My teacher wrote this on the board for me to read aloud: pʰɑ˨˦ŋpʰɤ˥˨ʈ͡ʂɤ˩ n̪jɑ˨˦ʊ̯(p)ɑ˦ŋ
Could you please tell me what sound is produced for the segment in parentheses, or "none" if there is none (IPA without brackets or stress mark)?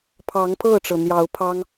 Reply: pʰ